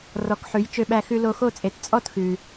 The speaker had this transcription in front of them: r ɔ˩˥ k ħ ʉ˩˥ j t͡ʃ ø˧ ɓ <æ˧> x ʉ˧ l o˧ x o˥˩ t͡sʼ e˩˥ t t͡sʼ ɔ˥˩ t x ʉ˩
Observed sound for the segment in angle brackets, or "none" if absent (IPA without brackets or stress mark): æ˧